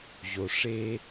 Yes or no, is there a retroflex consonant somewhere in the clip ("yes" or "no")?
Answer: yes